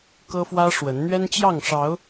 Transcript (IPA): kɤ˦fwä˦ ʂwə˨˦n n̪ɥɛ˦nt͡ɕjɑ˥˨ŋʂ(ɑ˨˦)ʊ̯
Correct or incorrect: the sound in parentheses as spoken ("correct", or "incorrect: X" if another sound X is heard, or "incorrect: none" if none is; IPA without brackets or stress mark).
correct